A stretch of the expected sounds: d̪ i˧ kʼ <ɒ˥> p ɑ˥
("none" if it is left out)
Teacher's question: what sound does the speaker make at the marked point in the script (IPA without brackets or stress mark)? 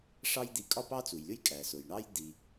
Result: ɒ˥